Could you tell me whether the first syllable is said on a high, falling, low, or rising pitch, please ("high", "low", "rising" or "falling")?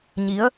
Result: rising